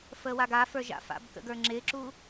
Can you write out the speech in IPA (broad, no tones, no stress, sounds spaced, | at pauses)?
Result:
f əː w a ɡ a f ə˞ ʒ a̰ f a̰ b k ə̰ ɡ ə˞ ŋ͡ǁ ɪː ǁ u